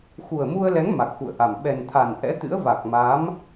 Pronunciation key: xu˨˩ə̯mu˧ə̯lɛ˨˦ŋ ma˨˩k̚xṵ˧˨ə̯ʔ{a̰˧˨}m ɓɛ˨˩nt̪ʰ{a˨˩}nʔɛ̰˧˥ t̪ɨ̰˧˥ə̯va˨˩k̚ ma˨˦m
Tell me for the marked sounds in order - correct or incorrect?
incorrect, correct

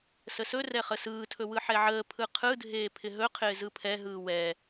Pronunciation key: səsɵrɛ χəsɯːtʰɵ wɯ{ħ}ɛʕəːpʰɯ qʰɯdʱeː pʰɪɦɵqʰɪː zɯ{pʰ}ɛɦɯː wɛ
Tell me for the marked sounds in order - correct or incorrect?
correct, correct

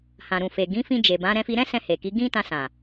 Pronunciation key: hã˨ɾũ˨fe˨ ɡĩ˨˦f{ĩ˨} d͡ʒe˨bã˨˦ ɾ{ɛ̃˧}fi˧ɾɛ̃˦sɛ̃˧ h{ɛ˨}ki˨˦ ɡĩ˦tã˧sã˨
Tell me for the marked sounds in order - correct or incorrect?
incorrect, correct, incorrect

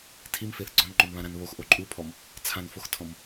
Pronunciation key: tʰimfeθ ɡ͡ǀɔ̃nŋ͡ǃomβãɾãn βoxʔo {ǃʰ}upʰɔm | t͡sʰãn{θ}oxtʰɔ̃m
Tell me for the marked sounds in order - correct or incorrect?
incorrect, incorrect

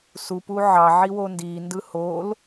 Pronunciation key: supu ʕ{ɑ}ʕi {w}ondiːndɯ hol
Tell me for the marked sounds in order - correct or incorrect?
correct, correct

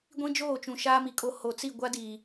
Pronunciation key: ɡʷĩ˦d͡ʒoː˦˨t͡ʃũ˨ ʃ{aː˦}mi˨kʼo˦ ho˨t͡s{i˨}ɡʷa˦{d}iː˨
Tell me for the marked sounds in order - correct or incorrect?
correct, incorrect, correct

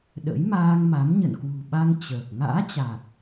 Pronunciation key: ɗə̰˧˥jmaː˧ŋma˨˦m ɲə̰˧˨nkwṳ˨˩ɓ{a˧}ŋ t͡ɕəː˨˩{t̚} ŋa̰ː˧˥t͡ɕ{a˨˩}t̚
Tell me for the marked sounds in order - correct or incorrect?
correct, incorrect, correct

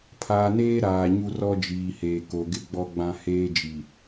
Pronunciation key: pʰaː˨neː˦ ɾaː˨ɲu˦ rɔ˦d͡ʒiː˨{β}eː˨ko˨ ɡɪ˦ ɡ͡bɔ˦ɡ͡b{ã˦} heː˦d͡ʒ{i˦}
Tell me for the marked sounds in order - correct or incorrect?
incorrect, correct, incorrect

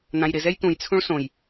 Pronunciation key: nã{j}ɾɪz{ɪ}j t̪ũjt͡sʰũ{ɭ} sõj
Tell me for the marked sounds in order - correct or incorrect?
correct, incorrect, correct

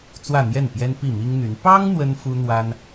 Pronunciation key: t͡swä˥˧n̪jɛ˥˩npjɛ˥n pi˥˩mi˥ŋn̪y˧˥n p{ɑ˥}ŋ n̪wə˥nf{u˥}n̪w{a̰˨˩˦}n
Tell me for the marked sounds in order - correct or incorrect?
correct, correct, incorrect

